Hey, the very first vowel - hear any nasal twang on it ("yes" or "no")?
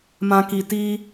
yes